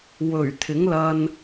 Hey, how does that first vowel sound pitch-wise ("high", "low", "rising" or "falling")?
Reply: low